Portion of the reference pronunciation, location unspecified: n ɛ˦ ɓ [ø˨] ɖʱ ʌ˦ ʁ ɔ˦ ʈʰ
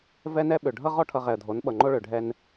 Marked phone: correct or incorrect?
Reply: correct